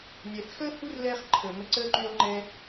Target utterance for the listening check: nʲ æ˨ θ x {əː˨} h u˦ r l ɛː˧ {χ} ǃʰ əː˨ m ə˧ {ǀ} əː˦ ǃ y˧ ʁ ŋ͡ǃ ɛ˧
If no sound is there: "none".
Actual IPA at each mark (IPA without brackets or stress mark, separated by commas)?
əː˦, χ, ǀ